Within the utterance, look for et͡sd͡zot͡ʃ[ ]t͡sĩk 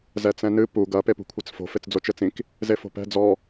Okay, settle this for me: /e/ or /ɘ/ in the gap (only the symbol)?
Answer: ɘ